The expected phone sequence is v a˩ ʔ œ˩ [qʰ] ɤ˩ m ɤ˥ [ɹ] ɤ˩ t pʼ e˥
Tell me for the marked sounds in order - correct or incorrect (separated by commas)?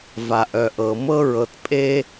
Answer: incorrect, correct